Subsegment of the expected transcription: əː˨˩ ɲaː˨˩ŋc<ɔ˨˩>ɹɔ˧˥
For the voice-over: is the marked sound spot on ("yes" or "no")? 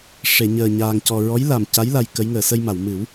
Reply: yes